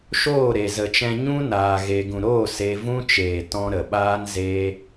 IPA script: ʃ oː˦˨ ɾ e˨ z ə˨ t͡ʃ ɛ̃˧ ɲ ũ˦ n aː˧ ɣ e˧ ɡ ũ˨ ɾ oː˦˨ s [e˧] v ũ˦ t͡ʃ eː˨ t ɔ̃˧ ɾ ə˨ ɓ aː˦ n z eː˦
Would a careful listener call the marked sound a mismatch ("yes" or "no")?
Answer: no